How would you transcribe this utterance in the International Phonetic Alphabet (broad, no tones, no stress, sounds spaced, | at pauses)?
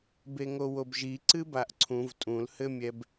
b e ŋ o w o b ʒ i ǀ ɨ b a ʔ ǀʰ ũ v tʼ ũ l h ɘ mʲ ɛ b